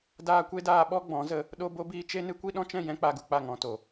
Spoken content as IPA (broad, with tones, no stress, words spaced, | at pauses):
daː˧ kʷe˦daː˧ ɓɔ˧ ɡ͡bɔ̃˨˦zə˧ | ɗo˧bo˧biː˧ t͡ʃe˦nɨ˦kʷi˦ ɗɔ̃˦t͡ʃɛ̃˦˨ jɛ̃˦ k͡pa˧ɡu˨k͡pa˦˨ ŋɔ̃˨to˨